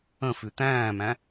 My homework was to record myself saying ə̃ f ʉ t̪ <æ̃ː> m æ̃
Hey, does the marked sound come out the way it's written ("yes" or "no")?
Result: yes